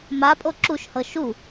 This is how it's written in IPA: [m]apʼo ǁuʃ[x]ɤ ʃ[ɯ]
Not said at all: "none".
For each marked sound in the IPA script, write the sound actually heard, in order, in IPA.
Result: m, h, u

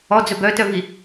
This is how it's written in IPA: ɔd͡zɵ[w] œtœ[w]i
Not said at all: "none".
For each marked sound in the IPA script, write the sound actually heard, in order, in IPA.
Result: b, v

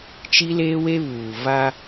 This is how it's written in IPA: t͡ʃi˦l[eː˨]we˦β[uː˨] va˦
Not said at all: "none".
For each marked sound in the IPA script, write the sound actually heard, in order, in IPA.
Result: eː˦, uː˨

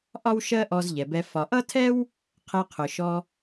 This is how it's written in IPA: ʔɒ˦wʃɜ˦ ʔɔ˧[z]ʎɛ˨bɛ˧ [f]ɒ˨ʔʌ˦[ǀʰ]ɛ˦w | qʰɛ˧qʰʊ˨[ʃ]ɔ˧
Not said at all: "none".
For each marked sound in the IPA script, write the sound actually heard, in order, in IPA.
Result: z, f, tʰ, ʃ

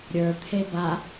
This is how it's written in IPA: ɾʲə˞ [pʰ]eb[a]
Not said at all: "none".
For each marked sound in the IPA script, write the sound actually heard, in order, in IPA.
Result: t̪ʰ, a

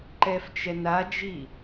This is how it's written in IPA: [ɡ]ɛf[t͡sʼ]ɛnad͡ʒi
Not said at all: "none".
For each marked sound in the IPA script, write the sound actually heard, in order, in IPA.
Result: ǃ, t͡ʃ

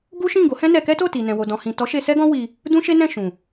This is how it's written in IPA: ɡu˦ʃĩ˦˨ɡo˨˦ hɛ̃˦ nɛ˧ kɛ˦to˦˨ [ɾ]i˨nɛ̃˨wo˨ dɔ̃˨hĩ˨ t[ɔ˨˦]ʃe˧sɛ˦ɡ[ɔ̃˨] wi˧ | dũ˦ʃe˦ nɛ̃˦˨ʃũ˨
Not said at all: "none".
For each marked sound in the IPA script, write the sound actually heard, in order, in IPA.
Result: t, ɔ˨˦, ɔ̃˦

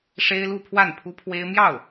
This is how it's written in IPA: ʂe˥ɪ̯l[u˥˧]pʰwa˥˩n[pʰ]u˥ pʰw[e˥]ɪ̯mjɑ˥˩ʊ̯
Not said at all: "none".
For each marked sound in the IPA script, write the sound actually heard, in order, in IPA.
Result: u˥˧, pʰ, e˥

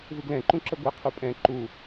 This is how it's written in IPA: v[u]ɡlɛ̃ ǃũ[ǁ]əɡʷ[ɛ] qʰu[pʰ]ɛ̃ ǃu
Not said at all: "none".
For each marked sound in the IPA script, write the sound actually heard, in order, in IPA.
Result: ɯ, ǁ, ɛ, pʼ

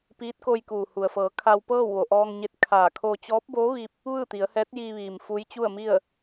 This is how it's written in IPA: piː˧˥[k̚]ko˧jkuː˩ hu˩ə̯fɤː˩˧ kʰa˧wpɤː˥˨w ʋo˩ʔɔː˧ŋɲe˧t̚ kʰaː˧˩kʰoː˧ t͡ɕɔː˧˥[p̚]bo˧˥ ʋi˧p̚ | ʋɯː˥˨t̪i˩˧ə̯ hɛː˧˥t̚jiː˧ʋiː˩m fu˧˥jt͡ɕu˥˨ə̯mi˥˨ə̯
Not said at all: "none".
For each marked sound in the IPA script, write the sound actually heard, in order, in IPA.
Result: t̚, p̚

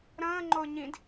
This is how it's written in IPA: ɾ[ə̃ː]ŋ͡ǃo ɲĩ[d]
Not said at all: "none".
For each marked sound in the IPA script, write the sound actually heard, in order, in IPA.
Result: ə̃ː, d

